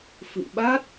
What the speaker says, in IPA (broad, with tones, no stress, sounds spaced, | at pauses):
f ɨ̰˧˨ m ɓ a˦˥ t̚